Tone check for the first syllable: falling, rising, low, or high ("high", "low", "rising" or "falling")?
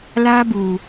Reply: high